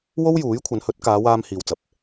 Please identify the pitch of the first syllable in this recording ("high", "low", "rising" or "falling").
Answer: high